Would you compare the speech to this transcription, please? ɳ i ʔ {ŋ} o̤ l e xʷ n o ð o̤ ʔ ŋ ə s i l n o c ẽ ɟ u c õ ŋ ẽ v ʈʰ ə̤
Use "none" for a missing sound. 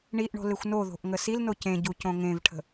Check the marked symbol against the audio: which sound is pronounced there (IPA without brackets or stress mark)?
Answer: ɳ